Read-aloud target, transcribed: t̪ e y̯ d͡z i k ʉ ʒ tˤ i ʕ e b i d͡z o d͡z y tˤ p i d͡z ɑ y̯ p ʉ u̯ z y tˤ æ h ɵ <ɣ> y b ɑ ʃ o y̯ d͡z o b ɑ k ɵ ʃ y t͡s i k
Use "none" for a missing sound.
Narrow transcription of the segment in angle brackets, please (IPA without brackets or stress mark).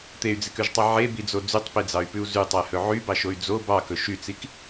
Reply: ʕ